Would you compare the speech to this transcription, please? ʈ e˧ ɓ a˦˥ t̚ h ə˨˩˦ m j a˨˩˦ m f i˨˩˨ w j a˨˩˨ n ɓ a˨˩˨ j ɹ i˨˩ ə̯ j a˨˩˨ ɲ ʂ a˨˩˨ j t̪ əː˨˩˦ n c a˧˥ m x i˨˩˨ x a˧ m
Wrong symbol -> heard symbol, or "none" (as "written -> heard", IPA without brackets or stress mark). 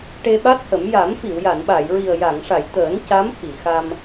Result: ɲ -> ŋ